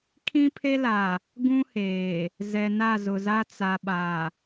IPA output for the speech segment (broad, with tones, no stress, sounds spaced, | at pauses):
kʰ ĩ˦ pʰ e˦ l a˨ | ɡ ũ˦ h eː˨ | z ɛ˨ n a˦˨ z ʊ˨ z a˦ t͡s a˨ ɓ a˨